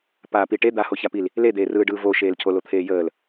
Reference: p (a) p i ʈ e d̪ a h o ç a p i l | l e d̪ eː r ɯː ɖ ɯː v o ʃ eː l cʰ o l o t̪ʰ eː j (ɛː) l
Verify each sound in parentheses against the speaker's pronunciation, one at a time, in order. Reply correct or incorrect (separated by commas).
incorrect, incorrect